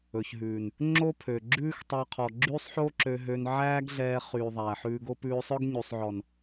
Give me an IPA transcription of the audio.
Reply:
ɵ˨ ç ɦ ʉ˨ n | ŋ͡ǁ o˦ pʰ ø˨ ɡ͡ǁ ʉː˦ x tˤ ɑ˧ qʰ ɔ˨ ɡ͡ǁ yː˦ sˤ ħ o˦ ǁ ø˧ ɦ ø˧ n ʕ æː˦ ɡ ɮ ɛː˧ χ yː˨ ðˤ æ˨ ħ ʉː˧ ɡ o˦ p ʉː˧ sˤ œ˦ ɡ ɲ y˨ sˤ ʕ ɔ˨ n

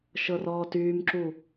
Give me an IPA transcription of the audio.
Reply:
ʃ ɤ r ɔː t yː m ǁ u

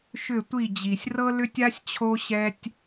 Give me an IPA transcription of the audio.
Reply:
ʃ ʏ˦˨ tʷ i˦˨ d͡ʑ i˨ sʲ r ɤ˦ l ʏ˦ tʲ a˦ sʲ t͡ɕʰ o˦ ɕ ɛ˦ tʲ

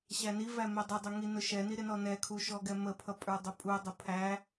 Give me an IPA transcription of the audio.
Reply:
ɕ æ n i v æ m ɛ dˤ ɪ dˤ ʊ ŋ i n ʊ ʃ ɛ n i ɾ ɪ n ɔ n ɛ kʰ u ʃ ɔ ɡ ɛ m ə pʰ ʌ pʼ ə˞ dˤ ʊ pʼ u dˤ ʊ pʰ æ

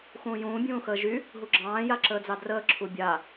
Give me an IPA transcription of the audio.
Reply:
x ũː j ũː bʲ ũː x əː ʒ y | ɦ u ɡ͡ǁ ɑ̃ː j a ǁ əː d͡z ɑ d r əː ǁʰ u bʲ a

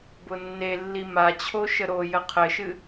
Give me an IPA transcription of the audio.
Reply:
b ʊ nː e lː i m a t͡ɕʰ o ʃ ə ɾ o j ə qʰ ɘ ʃ ɨ

